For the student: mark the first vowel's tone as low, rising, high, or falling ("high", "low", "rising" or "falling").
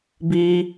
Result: high